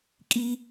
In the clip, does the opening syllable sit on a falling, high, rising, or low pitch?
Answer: high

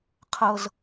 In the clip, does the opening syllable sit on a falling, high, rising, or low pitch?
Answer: high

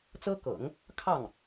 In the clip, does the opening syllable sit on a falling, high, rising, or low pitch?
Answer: high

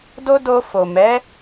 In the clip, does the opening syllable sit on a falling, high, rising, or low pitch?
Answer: high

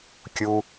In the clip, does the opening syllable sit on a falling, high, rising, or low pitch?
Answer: low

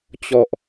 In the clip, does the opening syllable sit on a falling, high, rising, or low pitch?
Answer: low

